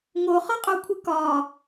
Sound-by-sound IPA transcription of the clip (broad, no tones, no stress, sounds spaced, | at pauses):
ŋ o χ ɒ qʼ o kʷʰ ɨ k ɒ